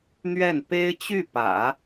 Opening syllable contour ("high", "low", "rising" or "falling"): falling